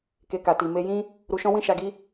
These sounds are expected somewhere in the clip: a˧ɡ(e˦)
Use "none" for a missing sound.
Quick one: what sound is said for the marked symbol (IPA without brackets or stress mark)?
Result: i˦